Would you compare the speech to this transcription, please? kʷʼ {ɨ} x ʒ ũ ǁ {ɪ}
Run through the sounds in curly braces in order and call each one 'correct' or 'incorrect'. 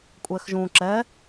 incorrect: ɛ, incorrect: ɛ

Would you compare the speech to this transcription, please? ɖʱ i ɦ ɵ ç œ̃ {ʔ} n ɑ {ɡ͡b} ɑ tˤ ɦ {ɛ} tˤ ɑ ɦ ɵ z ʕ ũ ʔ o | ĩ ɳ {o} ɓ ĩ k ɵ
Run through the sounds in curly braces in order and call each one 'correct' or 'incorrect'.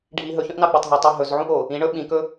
correct, correct, correct, incorrect: ɵ

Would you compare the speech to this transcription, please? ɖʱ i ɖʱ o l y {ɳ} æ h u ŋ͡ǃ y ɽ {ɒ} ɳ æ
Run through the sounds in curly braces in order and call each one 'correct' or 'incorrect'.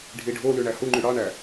correct, incorrect: ɑ

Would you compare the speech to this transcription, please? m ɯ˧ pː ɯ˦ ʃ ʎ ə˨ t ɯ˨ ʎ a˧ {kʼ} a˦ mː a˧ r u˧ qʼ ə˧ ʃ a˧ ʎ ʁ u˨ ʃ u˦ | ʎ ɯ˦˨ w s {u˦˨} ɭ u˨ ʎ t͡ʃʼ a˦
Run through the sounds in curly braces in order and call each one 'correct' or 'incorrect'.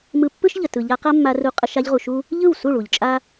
incorrect: q, correct

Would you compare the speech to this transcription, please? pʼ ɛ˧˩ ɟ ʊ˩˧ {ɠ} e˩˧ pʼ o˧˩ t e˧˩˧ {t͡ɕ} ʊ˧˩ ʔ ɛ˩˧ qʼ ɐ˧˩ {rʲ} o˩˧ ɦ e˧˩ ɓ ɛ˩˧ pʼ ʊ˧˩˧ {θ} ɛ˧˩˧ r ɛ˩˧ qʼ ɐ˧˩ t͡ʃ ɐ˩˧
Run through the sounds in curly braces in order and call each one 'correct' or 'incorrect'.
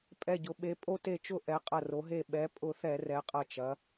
incorrect: ɓ, incorrect: t͡ʃ, incorrect: r, correct

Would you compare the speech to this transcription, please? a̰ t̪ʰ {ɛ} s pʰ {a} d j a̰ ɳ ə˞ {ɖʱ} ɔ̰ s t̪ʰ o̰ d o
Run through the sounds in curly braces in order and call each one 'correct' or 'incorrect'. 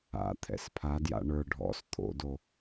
incorrect: ɛ̰, correct, correct

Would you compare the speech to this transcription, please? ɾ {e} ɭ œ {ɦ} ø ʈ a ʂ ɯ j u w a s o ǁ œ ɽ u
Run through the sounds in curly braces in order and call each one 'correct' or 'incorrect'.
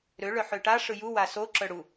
incorrect: ø, incorrect: ħ

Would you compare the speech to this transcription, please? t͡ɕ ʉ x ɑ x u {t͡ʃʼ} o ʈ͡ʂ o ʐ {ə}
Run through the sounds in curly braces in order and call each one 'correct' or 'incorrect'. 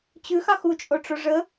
correct, correct

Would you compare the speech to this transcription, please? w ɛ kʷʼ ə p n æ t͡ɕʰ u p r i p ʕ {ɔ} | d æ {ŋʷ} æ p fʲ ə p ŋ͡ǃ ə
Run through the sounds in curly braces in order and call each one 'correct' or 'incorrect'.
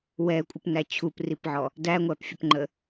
correct, correct

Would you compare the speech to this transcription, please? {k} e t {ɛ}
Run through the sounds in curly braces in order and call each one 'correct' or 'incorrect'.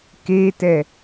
correct, correct

